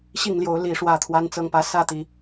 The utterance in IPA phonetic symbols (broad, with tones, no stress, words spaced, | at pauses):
ɕi˥˨ŋljo˨˦ʊ̯ li˨˩ ʂwä˥˨t̪ʰwa˦n t͡sɤ˨˩ŋpä˨˦ sä˥˨t̪i˩